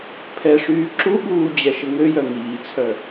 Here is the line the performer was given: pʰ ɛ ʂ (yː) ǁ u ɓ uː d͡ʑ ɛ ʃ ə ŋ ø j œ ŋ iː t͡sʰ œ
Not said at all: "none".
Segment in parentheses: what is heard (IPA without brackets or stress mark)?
yː